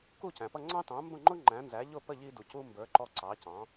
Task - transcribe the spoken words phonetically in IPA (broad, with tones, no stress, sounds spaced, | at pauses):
k u˥˩ c æ̃˩ p ʌ˥˩ ŋ͡ǀ ɑ̃˥ t ɑ̃˩˥ m b ə̃˥˩ ŋ͡ǃ ʊ˥ ŋ͡ǃ æ̃˩˥ n z æ˩˥ ʎ ʊ˥˩ p ə˥˩ ʎ i˧ d u˩ c u˧ m b ə˞˩˥ ǃ ɔ˧ ǀ ɑ˩˥ c ɑ̃˩˥